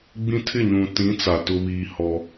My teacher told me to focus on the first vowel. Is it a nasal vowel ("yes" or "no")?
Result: yes